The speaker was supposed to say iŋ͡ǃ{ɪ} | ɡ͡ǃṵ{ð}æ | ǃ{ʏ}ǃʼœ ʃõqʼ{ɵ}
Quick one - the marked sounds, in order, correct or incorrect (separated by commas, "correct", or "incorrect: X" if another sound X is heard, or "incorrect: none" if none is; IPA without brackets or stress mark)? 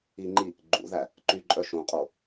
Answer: incorrect: i, correct, incorrect: y, incorrect: o